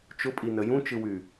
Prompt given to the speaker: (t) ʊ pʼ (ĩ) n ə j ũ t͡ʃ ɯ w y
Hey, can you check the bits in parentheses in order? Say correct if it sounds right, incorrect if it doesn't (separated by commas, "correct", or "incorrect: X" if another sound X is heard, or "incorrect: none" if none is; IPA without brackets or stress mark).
incorrect: t͡ʃ, incorrect: i